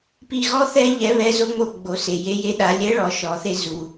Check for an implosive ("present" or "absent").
present